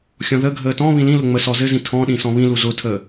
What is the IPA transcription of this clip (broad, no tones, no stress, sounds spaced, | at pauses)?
xʲ ɔ̃ ð ə ɡʱ əː t ɔ̃ β ĩ l ĩ l ʊ ŋ͡m ə s ɔ z ɘ z ĩ tʰ ɔ̃ ɗ ĩ s ɔ̃ β ĩ l u z ʊ tʰ əː